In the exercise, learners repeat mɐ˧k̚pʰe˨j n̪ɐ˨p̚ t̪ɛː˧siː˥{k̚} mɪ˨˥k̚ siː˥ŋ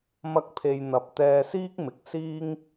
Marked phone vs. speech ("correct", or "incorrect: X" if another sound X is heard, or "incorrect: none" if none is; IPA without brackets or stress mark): correct